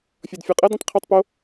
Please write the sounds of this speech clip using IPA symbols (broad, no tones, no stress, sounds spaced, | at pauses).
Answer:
fʲ ɔ d fʲ u qʼ ɛ d ẽ tˤ qʰ u tˤ p o